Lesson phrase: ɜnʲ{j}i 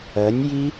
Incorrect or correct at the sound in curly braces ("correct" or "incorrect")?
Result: correct